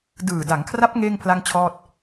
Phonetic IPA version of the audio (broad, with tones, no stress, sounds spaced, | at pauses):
d ɯː˨˩ d a˩˦ ŋ kʰ r a˦˥ p̚ ŋ eː˥˩ ŋ pʰ l a˥˩ ŋ t͡ɕʰ ɔː˥˩ t̚